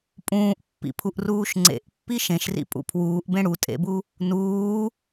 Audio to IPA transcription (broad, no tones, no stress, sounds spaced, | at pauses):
pʼ ũː ʔ pː ḭ pʰ u ʔ r uː ʃ ŋ͡ǀ ḛ ʔ pː i ʃ ẽ ʃ r ḭ pʼ ṵ pʰ w uː ʔ b ẽ ɽ u tʼ ḛ b u | n uː